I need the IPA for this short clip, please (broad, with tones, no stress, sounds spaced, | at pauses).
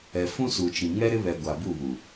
ɛ˨ f ũ˦ s u˨ t͡ʃ ĩ˨ ŋ ɛ˦ ɾ ɪ˦ β ɛ˨ ɡʷ a˨ b u˦˨ β u˨